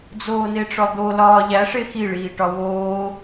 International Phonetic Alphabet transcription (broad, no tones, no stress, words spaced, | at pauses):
d͡zoːneʈ͡ʂɒd̪o lɒːʎæ ʂexi ɭiːʈɒwoː